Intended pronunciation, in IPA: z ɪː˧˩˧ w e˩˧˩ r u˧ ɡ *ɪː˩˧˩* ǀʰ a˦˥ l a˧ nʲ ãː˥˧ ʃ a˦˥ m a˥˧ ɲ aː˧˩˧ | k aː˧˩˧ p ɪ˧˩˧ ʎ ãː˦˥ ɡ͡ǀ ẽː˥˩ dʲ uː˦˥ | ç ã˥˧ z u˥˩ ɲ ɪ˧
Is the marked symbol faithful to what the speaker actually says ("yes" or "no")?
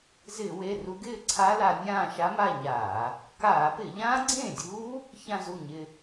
no